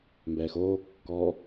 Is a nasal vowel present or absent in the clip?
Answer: absent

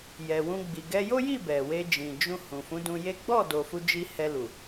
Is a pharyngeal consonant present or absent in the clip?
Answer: absent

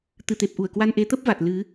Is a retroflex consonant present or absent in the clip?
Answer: absent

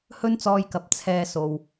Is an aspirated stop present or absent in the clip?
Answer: present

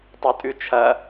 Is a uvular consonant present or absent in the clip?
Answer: absent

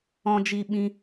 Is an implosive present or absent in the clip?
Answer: present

